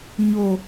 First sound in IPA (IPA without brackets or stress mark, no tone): ɲ